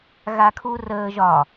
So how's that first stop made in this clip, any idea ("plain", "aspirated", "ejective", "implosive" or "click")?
aspirated